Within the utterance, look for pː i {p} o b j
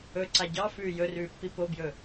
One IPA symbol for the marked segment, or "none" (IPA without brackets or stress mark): p